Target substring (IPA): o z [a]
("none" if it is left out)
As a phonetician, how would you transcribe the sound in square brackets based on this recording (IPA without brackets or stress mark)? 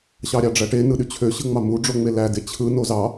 ɑ